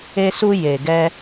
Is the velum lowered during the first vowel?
no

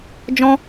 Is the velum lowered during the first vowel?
yes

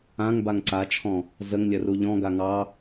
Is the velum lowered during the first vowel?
yes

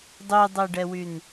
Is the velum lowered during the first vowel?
no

